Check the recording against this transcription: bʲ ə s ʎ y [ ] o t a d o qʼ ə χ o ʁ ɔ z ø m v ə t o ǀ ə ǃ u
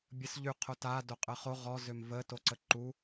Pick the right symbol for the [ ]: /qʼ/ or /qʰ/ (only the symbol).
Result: qʰ